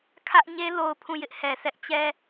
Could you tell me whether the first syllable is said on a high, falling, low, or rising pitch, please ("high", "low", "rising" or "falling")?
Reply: high